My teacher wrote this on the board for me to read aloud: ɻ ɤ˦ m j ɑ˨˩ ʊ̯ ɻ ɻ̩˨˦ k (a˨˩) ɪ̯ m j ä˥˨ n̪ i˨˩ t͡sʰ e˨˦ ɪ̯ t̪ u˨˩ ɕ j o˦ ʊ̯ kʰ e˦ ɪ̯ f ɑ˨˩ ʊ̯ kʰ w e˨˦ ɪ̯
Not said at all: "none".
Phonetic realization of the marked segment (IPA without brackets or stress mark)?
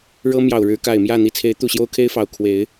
a˨˩